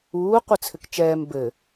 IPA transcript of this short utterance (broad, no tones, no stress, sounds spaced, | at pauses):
uː qʷ ɘ t͡sʰ ɘ k t͡ʃ ɛː m b ɘ